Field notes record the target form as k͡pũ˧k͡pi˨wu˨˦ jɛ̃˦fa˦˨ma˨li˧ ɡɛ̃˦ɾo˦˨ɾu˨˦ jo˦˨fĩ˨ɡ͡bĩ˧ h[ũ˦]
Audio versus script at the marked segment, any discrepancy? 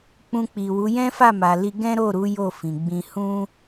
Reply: no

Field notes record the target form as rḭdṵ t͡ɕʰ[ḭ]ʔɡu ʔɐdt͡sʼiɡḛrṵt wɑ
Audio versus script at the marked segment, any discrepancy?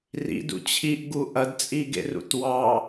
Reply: yes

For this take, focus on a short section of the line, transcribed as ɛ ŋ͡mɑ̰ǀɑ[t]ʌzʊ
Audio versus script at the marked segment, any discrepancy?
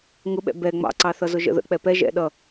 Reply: yes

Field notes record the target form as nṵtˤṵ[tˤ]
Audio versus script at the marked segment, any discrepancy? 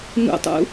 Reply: yes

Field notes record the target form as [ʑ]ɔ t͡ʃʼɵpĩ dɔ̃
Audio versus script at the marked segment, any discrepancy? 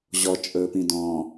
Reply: no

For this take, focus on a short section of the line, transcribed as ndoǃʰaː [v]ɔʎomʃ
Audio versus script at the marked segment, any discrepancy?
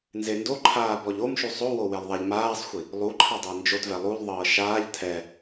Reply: yes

